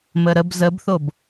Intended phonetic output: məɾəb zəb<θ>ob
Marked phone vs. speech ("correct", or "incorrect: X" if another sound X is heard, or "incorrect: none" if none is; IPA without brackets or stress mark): correct